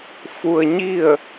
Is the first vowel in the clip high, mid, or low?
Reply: high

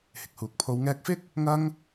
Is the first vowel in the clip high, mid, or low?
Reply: high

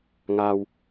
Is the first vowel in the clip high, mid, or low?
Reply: low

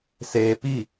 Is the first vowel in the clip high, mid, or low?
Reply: mid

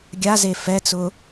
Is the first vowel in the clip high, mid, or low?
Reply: low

